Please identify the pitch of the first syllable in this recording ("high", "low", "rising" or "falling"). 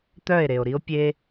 falling